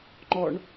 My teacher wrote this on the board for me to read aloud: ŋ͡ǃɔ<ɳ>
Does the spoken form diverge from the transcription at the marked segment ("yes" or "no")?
no